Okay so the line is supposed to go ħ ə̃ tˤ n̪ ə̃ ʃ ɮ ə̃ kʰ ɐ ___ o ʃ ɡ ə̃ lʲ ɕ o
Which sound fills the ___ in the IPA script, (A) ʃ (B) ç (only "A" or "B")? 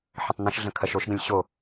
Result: A